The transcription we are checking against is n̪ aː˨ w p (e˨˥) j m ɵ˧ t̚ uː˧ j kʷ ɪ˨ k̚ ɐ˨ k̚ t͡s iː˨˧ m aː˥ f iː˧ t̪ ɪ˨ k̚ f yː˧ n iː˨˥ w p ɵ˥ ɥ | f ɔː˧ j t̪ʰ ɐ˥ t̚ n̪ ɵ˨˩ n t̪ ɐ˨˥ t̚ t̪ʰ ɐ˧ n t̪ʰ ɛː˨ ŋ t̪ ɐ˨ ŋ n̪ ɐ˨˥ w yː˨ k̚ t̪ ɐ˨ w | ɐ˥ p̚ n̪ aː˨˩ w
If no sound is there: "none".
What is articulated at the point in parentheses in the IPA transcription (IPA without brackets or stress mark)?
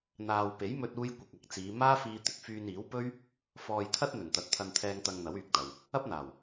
e˨˥